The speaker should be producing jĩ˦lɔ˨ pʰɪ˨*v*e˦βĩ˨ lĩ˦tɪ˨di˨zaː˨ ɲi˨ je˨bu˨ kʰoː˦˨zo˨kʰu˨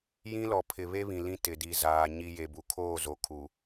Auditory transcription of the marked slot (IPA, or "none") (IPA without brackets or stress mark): β